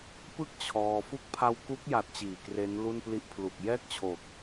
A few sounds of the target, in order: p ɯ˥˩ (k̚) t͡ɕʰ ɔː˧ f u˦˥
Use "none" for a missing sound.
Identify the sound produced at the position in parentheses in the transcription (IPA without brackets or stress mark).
k̚